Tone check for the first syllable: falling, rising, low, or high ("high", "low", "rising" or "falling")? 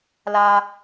high